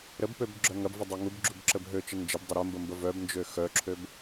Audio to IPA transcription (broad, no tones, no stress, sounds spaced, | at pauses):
ɾ ə b p ø b ɡ͡ǁ œ ŋ ɐ b v ə dˤ ø ŋ u b ɡ͡ǁ u b ǁ ə b ɦ ø t͡ʃ ə n d͡ʒ ɪ b dˤ ʊ ɾ ə m b ə m b ə v œ b n d͡ʒ ø x œ ǁʰ ø b